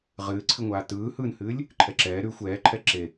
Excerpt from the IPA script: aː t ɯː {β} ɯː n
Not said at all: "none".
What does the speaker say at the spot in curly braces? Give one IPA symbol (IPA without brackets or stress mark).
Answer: h